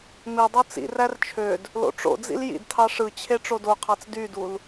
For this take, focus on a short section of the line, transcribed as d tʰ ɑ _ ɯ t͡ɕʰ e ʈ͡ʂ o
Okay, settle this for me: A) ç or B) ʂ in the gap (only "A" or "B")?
B